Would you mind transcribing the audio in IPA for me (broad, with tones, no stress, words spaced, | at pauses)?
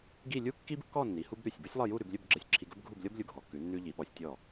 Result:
ɡi˥˧ lʲu˥kːi˥bkːɔ˥˧nːi˩˧ hu˥bɾʉ˧˩sʲ bu˥sʲlˠɤ˥˧ju˥˧ ɾʉ˩˧blʲɵ˥˧bɡ͡ǁɤ˧sʲ ǁʰi˧ɡɵ˥bɡʱu˥˧blʲɤ˥b lʲu˧˩ɡʱɔ˩˧kːʉ˩˧ nːʉ˧ʎi˩˧ɓɔ˩˧sʲtʲɔ˧˩